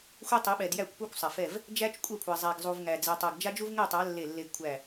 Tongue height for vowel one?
mid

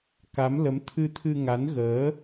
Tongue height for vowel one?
low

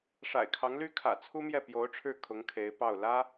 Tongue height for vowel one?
low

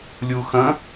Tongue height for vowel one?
high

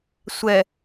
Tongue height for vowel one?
mid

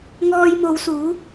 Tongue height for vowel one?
mid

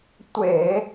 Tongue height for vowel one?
mid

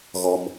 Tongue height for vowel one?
mid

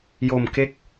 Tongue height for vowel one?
mid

